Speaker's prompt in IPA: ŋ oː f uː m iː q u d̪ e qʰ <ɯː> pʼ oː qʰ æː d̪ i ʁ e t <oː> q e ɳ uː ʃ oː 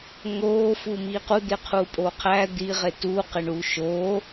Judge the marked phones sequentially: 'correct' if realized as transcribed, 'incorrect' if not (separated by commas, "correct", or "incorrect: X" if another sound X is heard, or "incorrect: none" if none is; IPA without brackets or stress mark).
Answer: incorrect: uː, incorrect: uː